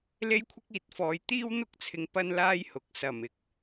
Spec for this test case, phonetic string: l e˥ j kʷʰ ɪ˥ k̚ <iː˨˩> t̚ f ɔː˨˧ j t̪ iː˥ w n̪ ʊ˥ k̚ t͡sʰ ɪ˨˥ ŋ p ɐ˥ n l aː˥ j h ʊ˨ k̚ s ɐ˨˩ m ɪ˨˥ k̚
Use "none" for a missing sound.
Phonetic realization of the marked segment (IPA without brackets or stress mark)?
iː˨